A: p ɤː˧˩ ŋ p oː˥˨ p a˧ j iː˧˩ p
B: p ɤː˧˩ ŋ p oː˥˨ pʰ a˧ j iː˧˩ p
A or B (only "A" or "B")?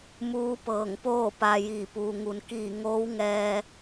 A